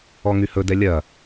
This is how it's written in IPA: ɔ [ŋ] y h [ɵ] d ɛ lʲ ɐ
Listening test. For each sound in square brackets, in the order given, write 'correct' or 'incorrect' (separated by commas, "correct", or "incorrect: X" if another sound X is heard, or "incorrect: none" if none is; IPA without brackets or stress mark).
correct, correct